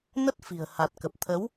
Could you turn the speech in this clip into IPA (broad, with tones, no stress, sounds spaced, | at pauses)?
n ə˦˥ t̚ f i̤˨˩ ə̯ h a˨˩ t̚ k ə˨˩ p̚ t̪ʰ ə˨˦ w